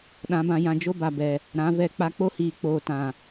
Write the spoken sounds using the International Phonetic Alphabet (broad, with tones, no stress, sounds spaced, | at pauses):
ɗ ã˨˦ b ã˧ j ã˧ d͡ʒ o˦ b a˨ b ɛ˨ | ɾ ã˨˦ v ɛ˧ k͡p a˦ k͡p o˦ h iː˨ k͡p oː˨ t ã˨